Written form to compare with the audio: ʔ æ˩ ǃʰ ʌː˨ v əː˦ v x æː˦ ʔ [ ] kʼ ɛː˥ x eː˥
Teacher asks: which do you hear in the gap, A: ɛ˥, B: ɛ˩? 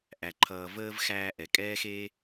B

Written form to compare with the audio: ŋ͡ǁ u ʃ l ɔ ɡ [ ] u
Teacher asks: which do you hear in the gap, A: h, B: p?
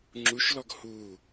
A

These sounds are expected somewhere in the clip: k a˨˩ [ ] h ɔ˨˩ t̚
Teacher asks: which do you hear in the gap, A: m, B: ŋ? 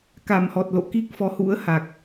A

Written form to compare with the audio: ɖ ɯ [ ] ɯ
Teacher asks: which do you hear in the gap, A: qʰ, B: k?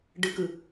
B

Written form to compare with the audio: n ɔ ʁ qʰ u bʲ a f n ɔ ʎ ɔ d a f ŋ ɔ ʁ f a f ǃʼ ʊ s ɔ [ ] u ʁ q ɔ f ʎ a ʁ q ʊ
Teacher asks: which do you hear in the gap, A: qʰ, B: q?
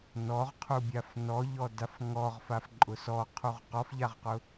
A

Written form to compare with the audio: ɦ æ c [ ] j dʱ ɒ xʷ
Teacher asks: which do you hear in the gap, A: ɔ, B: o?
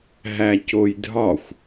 B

